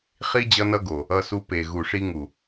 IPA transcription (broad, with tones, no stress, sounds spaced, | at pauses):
χ i˦ d͡ʑ ʌ˦ n ʌ˦ ɡ o˨ | ʌ˧ s u˧ p e˨ ɣ u˨ ʂ i˧ ŋ u˨